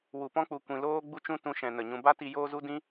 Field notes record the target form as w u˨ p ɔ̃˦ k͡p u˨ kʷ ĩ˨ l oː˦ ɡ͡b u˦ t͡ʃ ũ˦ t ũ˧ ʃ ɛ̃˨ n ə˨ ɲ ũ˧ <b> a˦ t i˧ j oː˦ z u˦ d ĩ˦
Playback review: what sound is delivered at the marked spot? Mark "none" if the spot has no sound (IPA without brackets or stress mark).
b